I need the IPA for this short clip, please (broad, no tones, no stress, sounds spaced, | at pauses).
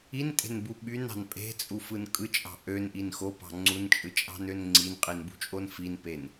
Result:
i n tʼ e̤ n b u ɓ y n ɑ̤ n pʼ e̤ t͡sʼ u f ɯ n kʼ ɯ t͡ʃʼ ɑ̤ ʔ ø n ʔ i n x o p ɑ̤ ŋ͡ǀ u n t͡ʃʼ ɯ t͡ʃʼ ɑ̤ n ø n ŋ͡ǀ i n qʼ i n b ṳ t͡ʃʼ o n f i n p e n